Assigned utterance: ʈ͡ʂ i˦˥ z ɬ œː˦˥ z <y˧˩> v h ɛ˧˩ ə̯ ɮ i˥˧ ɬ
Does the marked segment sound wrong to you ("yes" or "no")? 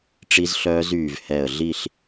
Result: yes